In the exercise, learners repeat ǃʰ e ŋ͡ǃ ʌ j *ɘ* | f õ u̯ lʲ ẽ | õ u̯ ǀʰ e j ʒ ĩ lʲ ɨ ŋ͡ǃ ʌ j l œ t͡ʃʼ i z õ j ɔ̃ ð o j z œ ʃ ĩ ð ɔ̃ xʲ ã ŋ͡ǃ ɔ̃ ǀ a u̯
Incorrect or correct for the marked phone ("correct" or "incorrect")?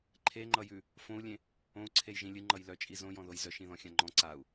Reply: incorrect